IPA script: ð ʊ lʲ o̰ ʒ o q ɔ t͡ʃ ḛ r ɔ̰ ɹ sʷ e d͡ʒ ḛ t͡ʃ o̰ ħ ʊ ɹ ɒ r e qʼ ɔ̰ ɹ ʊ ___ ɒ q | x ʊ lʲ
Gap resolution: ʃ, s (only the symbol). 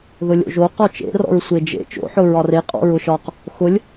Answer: ʃ